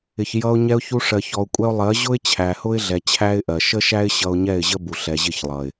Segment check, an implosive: absent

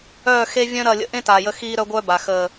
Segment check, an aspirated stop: absent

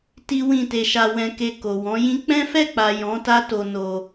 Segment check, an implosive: absent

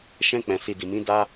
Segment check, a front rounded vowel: absent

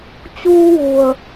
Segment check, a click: absent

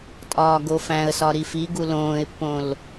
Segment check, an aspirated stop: absent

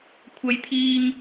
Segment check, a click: absent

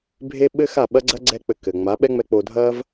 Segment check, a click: present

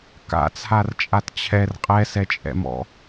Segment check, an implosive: absent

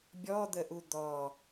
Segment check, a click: absent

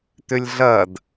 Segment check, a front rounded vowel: present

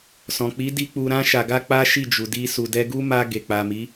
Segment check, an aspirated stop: absent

